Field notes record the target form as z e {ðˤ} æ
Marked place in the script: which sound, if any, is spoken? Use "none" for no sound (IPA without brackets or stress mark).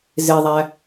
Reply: ðˤ